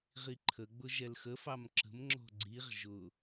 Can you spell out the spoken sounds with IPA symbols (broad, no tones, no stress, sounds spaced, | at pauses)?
ʁ i ǃʰ ə ɡ͡b ʊ ʒ ɛ l x ə f ɑ m ǁ ə̤ m ŋ͡ǁ ɔ̤ ɡ͡ǀ i ʁ ʒ ʊ